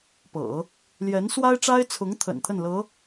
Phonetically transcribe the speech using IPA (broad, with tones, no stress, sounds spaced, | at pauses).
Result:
p ɤ̰˨˩˦ | l j ɛ˧˥ n s w a˥ ɪ̯ ʈ͡ʂ a˥ ɪ̯ t͡sʰ ʊ˧˥ ŋ t̪ʰ ə̰˨˩ n t̪ʰ ə˥˩ n l ɤ˧˥